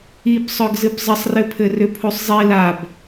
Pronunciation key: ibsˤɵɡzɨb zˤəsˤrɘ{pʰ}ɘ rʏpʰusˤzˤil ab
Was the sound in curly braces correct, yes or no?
yes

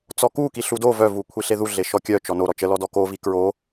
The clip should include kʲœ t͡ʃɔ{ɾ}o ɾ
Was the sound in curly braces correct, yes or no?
no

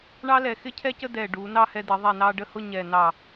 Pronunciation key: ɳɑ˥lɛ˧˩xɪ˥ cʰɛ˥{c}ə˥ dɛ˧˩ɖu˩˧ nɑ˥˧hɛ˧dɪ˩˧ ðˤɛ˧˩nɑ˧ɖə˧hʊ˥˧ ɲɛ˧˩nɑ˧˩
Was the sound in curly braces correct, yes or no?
yes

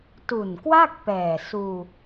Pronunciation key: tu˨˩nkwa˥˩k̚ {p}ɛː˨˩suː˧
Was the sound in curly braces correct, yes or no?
yes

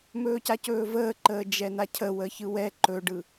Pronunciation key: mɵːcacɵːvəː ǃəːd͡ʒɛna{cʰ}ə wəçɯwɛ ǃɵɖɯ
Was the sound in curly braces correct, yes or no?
yes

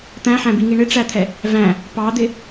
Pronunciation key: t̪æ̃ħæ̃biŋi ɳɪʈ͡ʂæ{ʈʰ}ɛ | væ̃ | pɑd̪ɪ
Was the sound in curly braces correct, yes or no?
no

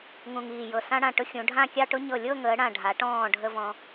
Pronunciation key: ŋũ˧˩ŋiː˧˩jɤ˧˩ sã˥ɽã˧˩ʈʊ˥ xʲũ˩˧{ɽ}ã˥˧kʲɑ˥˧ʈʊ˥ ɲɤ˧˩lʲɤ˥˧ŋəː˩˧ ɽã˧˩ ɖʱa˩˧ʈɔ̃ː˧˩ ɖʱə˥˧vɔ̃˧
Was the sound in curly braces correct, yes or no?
no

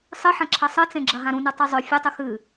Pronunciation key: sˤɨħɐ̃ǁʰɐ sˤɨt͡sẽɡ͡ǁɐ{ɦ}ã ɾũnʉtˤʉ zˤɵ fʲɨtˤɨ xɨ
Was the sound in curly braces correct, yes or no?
yes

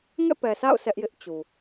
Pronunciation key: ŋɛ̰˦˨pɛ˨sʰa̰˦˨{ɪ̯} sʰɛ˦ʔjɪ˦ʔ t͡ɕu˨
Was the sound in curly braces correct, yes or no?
no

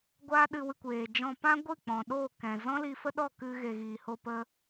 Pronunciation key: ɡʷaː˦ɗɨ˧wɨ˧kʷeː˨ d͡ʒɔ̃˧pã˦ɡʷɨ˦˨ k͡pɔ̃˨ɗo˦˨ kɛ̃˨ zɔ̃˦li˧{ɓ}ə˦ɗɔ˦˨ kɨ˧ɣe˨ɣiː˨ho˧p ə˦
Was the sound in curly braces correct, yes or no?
no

